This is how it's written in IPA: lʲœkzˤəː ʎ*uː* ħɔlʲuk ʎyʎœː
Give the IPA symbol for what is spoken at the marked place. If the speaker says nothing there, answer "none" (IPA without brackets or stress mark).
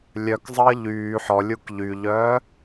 yː